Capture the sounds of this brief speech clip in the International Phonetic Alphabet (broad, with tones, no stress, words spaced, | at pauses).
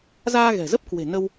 zaː˧ɣɛ̤˨˩zə˦˥p̚kwe̤˨˩ nə˧w